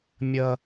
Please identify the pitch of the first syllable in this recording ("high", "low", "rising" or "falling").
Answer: high